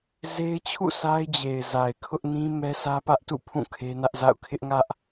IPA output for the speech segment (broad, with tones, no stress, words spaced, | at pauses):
ze˦ɪ̯t͡ɕʰṵ˦˨sa˦ɪ̯d͡ʑe˨ɪ̯ za˨ɪ̯kʰʊ˦ʔnĩ˦ mɛ˦sʰä˦pä˦ʔtṵ˦˨ pʰũ˦˨kʰe˦nä˦ʔza̰˦˨ʊ̯ kʰɪ˦ʔŋä˦ʔ